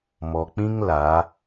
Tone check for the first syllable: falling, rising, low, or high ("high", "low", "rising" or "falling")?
low